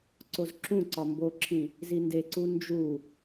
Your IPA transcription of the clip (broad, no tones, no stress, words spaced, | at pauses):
ǀozǁũǀɒ mboǁʰĩ | zindeǀu nd͡ʒu